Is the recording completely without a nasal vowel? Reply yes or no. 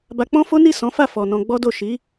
no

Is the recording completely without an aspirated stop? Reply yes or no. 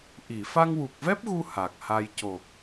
yes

